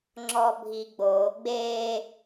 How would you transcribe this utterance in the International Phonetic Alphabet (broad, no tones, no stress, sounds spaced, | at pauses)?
ŋ͡ǁ ɔ bʱ i ɡ͡b o ɡ͡b e